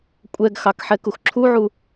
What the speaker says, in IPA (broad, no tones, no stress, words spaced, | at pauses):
kʷʼɛɡxɑk ħɛkuxǁʰuʕu